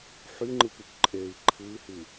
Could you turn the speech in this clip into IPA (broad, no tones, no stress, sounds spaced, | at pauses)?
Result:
ħ y ŋ͡ǃ ɯ p y k ǃʼ e i̯ ǃʰ ɯ i̯ h y